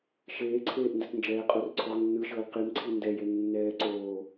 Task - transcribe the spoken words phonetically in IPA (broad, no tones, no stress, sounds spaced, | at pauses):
ʃ eː ǀʰ eː ʔ n d ɛ t n d͡ʒ ɛː qʼ o r ǀʰ ɔ ʁ nː ɯ ʃ ɤː l q i m ǀʰ i n d ɛ j e nː ɛː ǀ oː